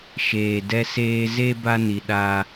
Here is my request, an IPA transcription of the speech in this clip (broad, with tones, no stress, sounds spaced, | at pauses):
ʃ eː˨ d ɛ˦ s eː˦ z e˦ b a˦ n i˨ ɗ a˦